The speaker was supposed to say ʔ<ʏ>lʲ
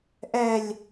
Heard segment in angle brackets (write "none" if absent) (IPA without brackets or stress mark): ɛ